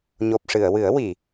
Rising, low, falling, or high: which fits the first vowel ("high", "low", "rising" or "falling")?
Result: low